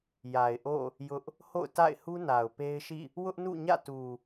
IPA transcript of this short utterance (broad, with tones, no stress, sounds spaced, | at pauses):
j a˨ ɪ̯ ʔ o̰˦˨ | j ʊ˦ ʔ | h o̰˦˨ ʊ̯ t a̰˦˨ ɪ̯ h u˦ n a˨ ʊ̯ p e˦ ɪ̯ ʃ ḭ˦˨ | w ʊ˦ ʔ n ṵ˦˨ ɲ ä̰˦˨ t u˨